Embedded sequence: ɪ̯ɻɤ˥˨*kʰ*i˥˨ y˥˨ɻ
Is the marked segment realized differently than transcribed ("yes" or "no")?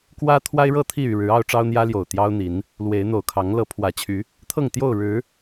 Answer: yes